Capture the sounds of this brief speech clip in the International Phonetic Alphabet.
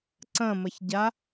ǀ ɐ̃ m ɐ ç ɟ a

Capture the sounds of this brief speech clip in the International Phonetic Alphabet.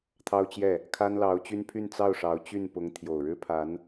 t̪ʰ ɑ˥ ʊ̯ t͡ɕ j ɛ˥˩ | kʰ a˥ n l ɑ˧˥ ʊ̯ t͡ɕ y˥ n pʰ y˥˧ n t͡s ɑ˥˩ ʊ̯ ʂ ɑ˧˥ ʊ̯ t͡ɕ y˥˩ n p ʊ˧˥ ŋ t̪ʰ j o˨˩ ʊ̯ ɻ ɻ̩˥ pʰ a˧˥ n

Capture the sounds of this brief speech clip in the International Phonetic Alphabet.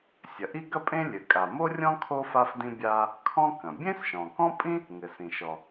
sʲ ɐ˩ ʔ i˥ ɡ ɐ˥ pʼ ẽ˥ lʲ ɘ˩ kʼ a˩ m o˥ rʲ ɔ̃˥ kʰ o˥ f a˥ f d ĩ˥ bʲ a˥ | kʰ ɔ̃˥ k ɐ̃˩ bʲ ẽ˥ s ʃ ɔ̃˩ k ɔ̃˥ pʼ ĩ˥ | ŋ ɘ˩ s ĩ˩ ʃ ɔ˩

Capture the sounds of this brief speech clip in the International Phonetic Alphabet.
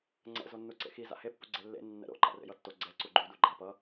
ŋ͡ǀ ɛ̰ z o nː u ǀ ḛ x i z a̰ h e pː u ɡ͡ǀ ɛ lː ḛ nː ɛ̰ ɾ o̰ ǃ a̰ r ḛ j ʌ tː o ɡ͡ǀ ɛ ǀ u ɡ͡ǃ u d u ɡ͡ǃ a p ʌ

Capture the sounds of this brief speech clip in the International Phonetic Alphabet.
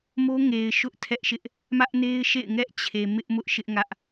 m o˦ ŋ e˨ ɪ̯ ʃ ʊ˦ ʔ tʰ ɛ˦ ʔ ʃ ɪ˦ ʔ | m ä˦ ʔ n e˦ ɪ̯ ʃ ḛ˦˨ ɪ̯ ŋ ɛ˦ ʔ t͡ɕʰ e˨ m ɪ˦ ʔ m ʊ˦ ʔ ʃ ɪ˦ ʔ ŋ ä˦ ʔ

